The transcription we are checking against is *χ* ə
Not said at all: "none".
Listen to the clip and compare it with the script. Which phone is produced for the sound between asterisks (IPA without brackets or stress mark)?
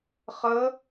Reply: χ